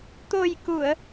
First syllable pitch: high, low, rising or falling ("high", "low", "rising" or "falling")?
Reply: low